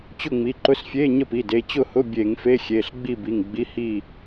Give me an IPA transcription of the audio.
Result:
t͡ɕ ʊ˥˨ ŋ͡m i˩˧˩ ǃ ʊ˧˥˧ s fʲ e˧˥˧ ɲ ə˥˨ p i˩˧˩ d e˩˧˩ t͡ɕ ʊ˥˨ h ʊ˧˥˧ bʲ e˧˩˧ ŋ f e˧˥˧ xʲ e˩˧˩ ɬ ɡ͡b i˥˨ b i˩˧˩ ŋ ɡ͡b i˧˥˧ h i˥˨

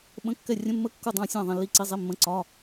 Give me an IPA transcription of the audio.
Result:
ɓ ə̃˧˥˧ kː ɛ˦˨ rʲ ə̃˧˥˧ mː ə˦˨ kː u˦˨ dˤ ɑ̃˦˨ sʲ ɑ̃˦˨ ðˤ ɛ̃˦˨ lː i˦˨ ǀ i˧˥˧ zˤ i˧˥˧ mː ə̃˧˥˧ ǀ ɒ˧˥˧

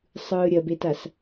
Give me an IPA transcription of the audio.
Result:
sˤ ɯː ɾʲ ɐ b e t a s

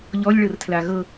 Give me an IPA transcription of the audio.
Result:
ʎ ɔ lʲ ɭ ɤ r tʰ l a ɣ ɤ

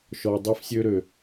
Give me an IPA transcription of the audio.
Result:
ʃ ɔ˨ dˤ i˧ f sʲ ø˧ ɾ ø˨

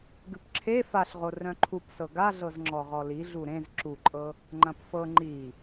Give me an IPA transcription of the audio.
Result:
ɡ ʉ p ǁʰ e f a ɬ ʁ o r œ̃ ǃʰ u p s ɤ ɡ a ɮ ɤ z ŋ͡ǁ ɔ ʁ ɔ l i ɮ u ɾ ẽ z ǁ u ǃʼ ɤ | ŋ͡ǃ ɐ̃ p f ɤ ŋ͡ǃ i

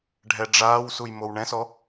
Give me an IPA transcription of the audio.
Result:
ɖʱ ɛ ɖ͡ʐ aː w s u j m o w ɳ ɛ̃ s ɔ

